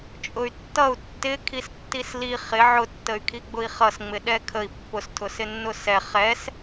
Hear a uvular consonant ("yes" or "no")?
yes